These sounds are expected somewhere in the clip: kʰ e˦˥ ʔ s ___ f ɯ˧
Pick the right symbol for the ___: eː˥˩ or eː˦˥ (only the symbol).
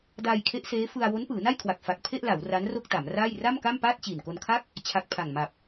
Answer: eː˦˥